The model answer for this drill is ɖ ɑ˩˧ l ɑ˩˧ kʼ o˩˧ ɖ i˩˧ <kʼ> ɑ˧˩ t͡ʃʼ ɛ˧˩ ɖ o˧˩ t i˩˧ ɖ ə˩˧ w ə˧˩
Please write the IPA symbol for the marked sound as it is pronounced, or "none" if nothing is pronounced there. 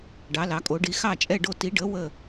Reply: x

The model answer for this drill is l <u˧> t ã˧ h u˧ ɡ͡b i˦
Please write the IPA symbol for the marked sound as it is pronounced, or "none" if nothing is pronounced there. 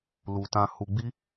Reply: u˧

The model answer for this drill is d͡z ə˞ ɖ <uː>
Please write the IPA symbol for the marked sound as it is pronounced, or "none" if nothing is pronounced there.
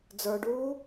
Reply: uː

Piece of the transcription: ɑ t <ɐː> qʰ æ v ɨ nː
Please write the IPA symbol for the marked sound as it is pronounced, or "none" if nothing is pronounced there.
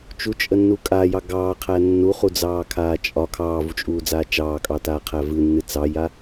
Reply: aː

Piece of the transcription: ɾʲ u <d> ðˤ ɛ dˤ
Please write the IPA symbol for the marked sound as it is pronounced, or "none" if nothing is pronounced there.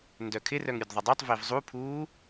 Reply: d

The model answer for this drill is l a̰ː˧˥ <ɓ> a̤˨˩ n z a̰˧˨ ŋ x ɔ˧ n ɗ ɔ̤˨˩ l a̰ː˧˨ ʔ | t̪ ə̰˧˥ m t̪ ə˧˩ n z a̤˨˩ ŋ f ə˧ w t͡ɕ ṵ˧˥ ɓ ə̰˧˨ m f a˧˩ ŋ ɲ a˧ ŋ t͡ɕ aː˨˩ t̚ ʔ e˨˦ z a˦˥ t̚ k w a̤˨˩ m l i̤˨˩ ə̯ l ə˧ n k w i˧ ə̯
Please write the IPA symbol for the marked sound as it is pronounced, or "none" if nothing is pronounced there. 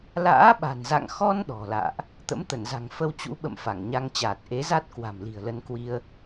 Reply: ɓ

